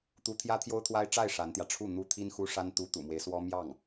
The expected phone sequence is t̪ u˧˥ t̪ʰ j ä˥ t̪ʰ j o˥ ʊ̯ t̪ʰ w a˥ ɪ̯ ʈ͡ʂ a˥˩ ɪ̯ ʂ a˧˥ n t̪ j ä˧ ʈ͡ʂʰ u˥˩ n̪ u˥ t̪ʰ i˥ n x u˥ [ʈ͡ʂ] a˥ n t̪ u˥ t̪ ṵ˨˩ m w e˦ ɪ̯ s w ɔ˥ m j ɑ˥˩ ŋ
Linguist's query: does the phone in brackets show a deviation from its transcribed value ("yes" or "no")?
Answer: yes